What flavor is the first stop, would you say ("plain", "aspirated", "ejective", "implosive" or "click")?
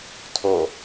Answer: aspirated